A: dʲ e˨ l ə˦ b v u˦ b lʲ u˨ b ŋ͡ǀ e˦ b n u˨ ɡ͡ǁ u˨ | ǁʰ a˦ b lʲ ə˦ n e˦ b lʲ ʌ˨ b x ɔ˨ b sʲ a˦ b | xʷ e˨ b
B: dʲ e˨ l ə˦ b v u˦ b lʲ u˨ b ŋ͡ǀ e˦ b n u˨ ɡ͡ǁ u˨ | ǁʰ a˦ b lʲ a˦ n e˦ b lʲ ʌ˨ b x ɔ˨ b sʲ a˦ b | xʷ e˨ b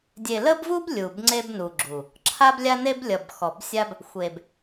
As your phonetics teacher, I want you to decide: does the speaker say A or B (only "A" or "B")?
B